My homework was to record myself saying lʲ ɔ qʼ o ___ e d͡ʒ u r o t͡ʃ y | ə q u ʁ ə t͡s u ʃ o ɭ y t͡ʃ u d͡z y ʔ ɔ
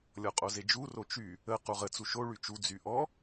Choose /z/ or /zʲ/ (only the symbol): z